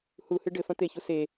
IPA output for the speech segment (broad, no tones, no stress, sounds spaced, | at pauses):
h u h ɨ ɖ ɘ f ɐ̃ t̪ e ç u s e